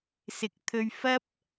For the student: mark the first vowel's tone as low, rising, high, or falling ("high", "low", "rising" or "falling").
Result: low